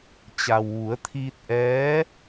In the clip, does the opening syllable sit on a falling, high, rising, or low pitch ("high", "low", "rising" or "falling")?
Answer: low